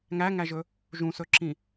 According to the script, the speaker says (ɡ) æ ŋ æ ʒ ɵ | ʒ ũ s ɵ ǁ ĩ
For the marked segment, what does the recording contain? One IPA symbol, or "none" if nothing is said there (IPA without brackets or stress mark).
ŋ